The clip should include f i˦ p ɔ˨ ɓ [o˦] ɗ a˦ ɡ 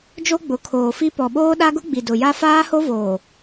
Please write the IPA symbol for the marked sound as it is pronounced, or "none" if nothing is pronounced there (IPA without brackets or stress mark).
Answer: oː˦